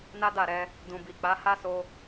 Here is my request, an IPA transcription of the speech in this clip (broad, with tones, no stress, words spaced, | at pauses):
na˦da˦˨ɾɛ˧ | dũ˨bi˨k͡pa˨˦ ha˦so˧